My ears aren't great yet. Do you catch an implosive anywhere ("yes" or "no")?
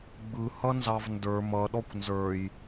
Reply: yes